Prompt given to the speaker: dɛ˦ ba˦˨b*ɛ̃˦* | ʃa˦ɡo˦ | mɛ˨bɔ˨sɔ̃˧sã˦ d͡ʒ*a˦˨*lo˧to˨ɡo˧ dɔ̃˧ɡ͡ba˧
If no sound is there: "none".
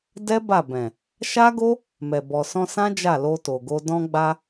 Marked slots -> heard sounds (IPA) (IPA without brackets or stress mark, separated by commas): ɛ̃˨, a˦˨